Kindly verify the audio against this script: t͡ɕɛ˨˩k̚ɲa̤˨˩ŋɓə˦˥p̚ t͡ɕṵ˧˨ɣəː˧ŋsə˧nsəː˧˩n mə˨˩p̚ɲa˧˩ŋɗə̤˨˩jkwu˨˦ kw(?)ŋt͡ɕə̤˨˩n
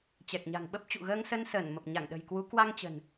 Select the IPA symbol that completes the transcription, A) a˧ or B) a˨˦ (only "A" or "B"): A